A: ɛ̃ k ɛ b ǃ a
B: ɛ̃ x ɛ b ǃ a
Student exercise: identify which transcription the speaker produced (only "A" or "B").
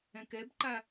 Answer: A